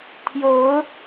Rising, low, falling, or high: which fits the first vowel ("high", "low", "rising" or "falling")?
rising